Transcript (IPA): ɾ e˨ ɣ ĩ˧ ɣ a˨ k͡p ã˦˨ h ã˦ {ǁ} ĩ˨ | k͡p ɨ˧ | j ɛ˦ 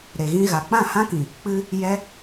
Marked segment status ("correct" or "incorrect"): incorrect